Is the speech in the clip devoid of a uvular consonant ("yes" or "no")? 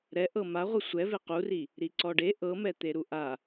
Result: no